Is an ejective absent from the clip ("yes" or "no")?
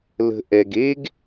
yes